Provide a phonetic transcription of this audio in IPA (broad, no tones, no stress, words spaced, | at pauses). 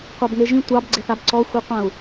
qʷɑbŋeʒĩ tʷɑbɡ͡ǀeθab ǀɔxʷiqʷãu̯